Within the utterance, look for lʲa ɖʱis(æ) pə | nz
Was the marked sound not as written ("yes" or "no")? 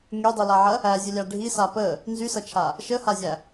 yes